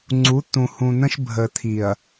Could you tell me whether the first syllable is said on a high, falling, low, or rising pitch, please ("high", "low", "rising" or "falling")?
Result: rising